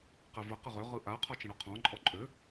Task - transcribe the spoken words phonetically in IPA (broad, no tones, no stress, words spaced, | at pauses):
qɛvə qəʁø ʁɯʔa qʰɔt͡ʃə̃ɽɔqʰɔ̃ ǃʼɔǃʼø